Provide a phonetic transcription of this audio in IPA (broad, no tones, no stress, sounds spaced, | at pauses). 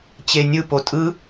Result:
t͡ɕ e nʲ ɯ p o tʼ ɯ